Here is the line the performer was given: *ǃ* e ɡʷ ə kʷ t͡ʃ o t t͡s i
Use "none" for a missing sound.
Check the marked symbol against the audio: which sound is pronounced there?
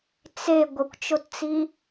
t͡s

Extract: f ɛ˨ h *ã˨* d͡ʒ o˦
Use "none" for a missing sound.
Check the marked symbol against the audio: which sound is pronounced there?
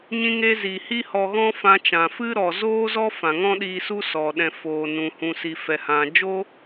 ã˨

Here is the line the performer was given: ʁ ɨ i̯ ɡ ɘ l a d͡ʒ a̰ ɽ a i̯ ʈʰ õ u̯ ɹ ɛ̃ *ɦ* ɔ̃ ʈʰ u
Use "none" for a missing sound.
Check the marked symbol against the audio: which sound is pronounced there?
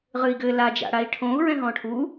ɦ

